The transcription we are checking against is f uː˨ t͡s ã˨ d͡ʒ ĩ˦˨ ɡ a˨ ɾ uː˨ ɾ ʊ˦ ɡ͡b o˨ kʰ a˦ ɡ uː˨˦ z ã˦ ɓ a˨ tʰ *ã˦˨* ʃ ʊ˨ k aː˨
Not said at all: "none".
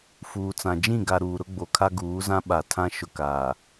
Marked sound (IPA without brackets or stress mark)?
ã˦